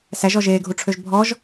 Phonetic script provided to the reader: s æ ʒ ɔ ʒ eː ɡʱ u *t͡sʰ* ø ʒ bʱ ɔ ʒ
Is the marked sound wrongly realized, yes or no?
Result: yes